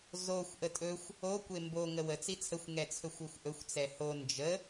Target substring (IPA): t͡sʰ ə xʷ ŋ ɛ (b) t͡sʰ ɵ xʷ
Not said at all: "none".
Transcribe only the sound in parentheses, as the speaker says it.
none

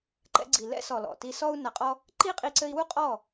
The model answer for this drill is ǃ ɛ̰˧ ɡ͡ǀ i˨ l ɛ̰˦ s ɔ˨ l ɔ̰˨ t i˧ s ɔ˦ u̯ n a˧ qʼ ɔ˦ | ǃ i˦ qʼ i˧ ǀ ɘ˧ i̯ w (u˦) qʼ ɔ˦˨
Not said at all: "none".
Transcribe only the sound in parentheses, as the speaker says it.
u˦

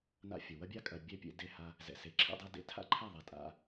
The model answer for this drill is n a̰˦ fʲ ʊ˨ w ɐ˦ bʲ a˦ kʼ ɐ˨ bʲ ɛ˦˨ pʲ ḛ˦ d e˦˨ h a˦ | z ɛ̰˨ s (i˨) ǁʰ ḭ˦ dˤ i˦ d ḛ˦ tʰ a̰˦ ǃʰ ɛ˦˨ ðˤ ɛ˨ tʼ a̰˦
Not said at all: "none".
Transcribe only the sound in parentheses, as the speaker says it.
e˨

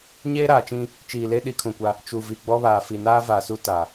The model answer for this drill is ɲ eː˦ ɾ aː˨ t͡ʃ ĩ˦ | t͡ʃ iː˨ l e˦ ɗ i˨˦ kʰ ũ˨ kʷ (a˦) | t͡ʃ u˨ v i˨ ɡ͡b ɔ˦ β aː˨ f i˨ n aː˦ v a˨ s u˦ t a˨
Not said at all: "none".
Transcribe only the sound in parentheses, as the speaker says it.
a˦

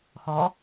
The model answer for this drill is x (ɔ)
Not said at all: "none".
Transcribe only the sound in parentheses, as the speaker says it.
ɔ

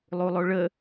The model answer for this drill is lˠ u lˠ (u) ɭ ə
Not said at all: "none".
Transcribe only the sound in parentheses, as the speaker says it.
o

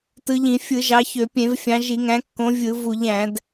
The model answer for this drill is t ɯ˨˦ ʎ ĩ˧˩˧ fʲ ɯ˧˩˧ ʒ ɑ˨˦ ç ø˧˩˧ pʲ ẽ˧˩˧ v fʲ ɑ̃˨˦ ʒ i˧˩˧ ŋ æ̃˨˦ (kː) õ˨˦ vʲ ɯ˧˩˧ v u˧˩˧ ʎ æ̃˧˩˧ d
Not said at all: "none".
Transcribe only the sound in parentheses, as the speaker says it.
kː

